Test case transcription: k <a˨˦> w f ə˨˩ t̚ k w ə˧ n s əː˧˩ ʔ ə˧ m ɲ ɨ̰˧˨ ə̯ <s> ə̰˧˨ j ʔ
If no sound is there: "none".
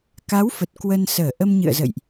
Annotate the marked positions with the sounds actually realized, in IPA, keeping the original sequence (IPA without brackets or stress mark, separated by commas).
a˨˦, z